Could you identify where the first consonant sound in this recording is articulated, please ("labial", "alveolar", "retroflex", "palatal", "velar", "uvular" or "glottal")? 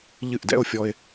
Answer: palatal